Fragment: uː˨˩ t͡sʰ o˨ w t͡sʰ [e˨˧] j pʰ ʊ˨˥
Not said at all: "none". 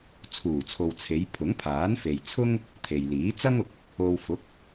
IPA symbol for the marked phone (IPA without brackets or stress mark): e˨˧